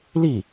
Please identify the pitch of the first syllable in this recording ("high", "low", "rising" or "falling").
falling